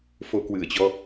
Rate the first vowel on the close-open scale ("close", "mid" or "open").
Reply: mid